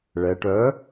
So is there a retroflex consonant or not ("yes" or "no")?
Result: yes